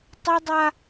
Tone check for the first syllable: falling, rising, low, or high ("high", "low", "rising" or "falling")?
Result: high